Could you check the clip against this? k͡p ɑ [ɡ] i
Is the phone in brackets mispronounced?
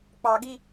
no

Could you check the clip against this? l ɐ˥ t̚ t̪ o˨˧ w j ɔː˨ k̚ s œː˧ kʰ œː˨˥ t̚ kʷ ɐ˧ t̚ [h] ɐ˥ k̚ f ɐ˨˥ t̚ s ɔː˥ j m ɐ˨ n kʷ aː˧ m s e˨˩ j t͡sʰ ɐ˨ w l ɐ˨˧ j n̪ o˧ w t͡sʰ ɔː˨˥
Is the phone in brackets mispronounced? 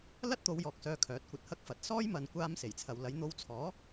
no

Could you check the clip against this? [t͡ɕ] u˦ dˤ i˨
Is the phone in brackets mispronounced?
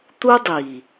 yes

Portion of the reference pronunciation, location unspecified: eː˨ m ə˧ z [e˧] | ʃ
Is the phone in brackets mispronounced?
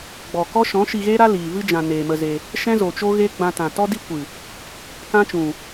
no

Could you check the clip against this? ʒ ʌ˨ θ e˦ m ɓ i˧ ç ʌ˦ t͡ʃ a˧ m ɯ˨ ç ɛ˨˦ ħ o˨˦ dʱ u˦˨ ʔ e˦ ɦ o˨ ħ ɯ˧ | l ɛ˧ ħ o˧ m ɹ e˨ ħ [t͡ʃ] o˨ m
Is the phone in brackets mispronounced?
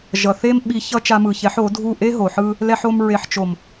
no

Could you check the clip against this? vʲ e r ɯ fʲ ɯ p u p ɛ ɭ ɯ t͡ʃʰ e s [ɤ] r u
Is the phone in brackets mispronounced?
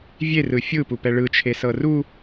no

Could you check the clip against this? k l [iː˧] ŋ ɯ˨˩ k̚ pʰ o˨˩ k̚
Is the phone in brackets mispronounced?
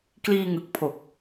no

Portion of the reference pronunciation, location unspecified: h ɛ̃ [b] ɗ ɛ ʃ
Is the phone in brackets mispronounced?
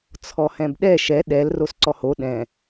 no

